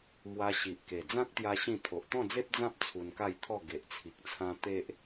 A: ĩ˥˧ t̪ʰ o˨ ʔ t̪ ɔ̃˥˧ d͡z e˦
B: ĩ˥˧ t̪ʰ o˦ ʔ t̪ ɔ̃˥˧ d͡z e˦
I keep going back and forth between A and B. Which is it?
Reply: A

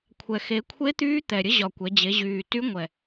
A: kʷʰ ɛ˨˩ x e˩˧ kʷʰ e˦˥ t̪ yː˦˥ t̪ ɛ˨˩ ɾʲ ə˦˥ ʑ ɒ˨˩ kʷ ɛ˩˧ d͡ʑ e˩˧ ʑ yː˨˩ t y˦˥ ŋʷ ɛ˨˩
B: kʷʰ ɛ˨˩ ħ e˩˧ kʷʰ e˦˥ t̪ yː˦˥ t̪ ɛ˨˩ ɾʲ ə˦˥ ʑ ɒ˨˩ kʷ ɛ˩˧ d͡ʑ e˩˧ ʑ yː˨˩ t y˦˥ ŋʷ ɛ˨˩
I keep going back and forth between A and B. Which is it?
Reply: A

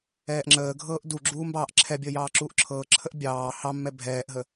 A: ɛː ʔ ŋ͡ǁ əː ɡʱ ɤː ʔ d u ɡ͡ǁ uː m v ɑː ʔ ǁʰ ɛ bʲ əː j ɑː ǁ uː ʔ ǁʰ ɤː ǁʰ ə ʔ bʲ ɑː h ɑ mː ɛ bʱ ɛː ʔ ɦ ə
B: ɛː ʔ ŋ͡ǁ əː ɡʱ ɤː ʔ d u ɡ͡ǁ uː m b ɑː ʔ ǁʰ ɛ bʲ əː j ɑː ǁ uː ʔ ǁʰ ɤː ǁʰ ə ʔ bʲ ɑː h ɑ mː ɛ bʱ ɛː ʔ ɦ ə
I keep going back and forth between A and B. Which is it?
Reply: B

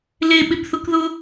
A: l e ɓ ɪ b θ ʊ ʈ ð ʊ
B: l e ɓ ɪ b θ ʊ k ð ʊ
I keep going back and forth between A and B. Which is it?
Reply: B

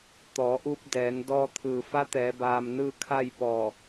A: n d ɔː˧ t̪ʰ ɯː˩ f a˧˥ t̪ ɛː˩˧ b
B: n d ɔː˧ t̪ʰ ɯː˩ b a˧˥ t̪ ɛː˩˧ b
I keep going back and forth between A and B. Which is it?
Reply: A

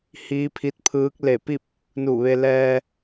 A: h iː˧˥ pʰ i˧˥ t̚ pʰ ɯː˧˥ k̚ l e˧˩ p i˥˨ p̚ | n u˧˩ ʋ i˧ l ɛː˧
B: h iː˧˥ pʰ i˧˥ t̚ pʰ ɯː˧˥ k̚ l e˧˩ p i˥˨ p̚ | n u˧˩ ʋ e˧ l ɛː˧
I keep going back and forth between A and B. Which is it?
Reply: B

